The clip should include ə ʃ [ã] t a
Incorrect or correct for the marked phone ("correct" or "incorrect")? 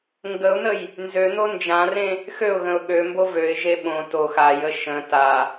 incorrect